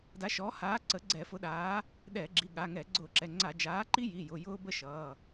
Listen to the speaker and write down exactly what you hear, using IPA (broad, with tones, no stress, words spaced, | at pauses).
da˨˥ʃɔː˨˥haː˨˥ ǀə˨˥ɡ͡ǀɛ˧˩˧fʊ˨˥ɗaː˨˥ | ɗɛː˧˩˧ɡ͡ǁi˩˧˩ɠa˩˧˩ŋɛ˧˩˧ ɡ͡ǀʊː˧˩˧ǁɛ˩˧˩ŋ͡ǀa˧˩˧ d͡ʒaː˨˥ǃi˥ ji˩˧˩jʊ˩˧˩ jʊː˥bə˥ʃʌː˩˧˩